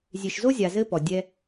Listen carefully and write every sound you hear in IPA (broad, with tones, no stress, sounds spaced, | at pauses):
zʲ e˨ ʃ z o˦ zʲ a˨ z ɘ˦ p ɔ˨ dʲ ɛ˦